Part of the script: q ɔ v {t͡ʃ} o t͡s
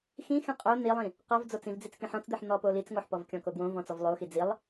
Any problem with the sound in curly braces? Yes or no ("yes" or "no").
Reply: yes